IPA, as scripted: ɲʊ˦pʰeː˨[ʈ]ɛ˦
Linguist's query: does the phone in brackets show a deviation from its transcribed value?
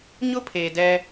yes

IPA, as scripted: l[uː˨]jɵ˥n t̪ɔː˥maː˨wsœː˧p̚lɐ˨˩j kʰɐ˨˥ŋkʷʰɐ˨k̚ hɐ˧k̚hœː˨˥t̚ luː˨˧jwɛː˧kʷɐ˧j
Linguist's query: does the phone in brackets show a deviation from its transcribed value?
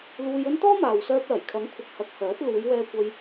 yes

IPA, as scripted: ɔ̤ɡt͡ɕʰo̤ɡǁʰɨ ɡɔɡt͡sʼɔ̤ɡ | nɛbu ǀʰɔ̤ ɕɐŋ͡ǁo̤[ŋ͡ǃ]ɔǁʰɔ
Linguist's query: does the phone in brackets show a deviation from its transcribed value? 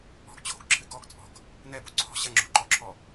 yes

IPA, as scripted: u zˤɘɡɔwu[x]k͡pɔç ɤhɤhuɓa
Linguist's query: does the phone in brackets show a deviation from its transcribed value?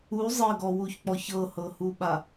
yes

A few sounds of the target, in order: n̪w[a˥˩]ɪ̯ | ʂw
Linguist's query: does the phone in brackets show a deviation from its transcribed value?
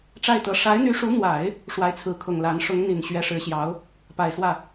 yes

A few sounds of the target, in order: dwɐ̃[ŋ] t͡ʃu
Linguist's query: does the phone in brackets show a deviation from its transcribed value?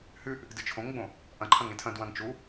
no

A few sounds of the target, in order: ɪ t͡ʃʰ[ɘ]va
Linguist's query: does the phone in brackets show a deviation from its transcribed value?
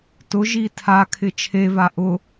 yes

